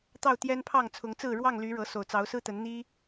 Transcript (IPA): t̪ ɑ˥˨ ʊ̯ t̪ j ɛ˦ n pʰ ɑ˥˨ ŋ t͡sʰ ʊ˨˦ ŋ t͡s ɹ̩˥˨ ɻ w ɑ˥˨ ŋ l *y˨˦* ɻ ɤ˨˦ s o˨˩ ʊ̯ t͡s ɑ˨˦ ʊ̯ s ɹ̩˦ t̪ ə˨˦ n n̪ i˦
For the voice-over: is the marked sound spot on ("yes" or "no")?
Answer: yes